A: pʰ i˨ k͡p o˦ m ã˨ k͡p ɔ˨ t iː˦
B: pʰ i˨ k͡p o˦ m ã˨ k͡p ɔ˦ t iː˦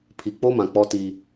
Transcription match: B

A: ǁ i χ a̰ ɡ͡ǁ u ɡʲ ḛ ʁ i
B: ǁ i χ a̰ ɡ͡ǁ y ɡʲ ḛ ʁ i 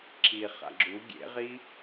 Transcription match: A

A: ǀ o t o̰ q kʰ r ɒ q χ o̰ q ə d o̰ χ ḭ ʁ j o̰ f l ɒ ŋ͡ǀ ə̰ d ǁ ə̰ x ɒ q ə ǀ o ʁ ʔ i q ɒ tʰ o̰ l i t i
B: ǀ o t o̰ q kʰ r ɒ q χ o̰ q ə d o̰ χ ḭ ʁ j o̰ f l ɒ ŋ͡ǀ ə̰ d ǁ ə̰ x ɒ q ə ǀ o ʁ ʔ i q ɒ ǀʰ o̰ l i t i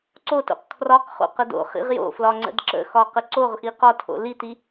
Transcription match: A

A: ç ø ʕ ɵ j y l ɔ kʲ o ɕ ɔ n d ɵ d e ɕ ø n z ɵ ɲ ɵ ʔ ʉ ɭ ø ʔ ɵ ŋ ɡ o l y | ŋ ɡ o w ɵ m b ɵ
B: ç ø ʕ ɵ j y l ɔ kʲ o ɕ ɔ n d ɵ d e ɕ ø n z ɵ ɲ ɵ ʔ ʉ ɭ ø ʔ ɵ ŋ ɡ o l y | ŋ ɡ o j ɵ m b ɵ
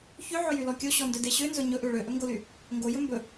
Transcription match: B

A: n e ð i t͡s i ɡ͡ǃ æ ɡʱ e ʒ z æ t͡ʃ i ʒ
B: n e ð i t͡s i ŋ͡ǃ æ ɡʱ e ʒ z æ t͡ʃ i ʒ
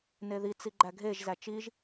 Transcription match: A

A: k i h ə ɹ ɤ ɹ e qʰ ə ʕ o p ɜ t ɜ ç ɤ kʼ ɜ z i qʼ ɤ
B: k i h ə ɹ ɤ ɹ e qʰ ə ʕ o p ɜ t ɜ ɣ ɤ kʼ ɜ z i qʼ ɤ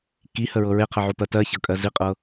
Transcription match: A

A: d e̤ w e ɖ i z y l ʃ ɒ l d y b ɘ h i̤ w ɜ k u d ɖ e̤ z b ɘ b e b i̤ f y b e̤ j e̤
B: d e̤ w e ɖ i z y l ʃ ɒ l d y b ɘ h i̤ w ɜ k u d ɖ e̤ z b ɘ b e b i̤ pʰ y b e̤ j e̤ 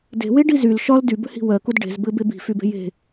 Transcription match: A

